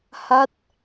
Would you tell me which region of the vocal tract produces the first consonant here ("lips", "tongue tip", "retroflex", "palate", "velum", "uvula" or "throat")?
throat